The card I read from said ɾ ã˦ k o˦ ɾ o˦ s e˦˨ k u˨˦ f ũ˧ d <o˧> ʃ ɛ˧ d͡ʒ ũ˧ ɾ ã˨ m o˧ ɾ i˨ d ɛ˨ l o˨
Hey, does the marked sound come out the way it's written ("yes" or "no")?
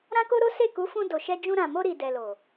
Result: no